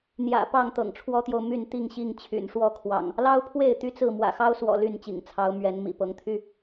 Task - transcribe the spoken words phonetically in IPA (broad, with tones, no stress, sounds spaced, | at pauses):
n̪ j ä̰˨˩ p ɑ˥˨ ŋ t̪ ɤ̰˨˩ ŋ ʈ͡ʂʰ w ɔ˦ t̪ j o˨ ʊ̯ m y˥˨ n t̪ i˥˨ ŋ ɕ i˥˨ ŋ t͡ɕʰ y̰˨˩ n ʂ w ɔ˥˨ kʰ w ɑ̰˨˩ ŋ | l ɑ˦ ʊ̯ pʰ w e˥˨ ɪ̯ t̪ y˦ t͡s ɹ̩˥˨ m w ä̰˨˩ x ɑ˦ ʊ̯ s w ɔ̰˨˩ l y˥˨ n t͡ɕ ḭ˨˩ ŋ t͡sʰ ɑ˨˦ ʊ̯ m ɥ ɛ˨˦ n m ḭ˨˩ p ɤ˨˦ ŋ t̪ʰ y˦